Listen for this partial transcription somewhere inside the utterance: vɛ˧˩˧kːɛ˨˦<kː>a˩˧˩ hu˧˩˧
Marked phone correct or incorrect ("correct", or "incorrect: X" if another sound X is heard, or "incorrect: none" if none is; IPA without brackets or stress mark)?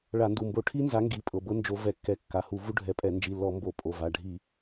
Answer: correct